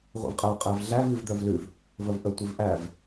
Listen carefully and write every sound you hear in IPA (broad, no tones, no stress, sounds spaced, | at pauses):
ʁʷ æ̰ v qʼ æ qʼ æ v ɮ æ v i v d̪ œ v l ʉ v | v ə v ʔ ə tʷ i v ʔ æ v